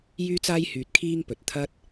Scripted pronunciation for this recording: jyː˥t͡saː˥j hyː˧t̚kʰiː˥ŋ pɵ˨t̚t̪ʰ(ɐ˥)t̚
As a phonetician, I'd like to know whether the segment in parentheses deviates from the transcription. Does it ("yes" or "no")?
no